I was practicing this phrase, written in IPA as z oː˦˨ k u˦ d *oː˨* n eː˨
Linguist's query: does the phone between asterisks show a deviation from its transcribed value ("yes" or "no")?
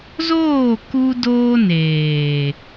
yes